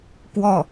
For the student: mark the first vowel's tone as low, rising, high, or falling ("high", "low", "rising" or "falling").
falling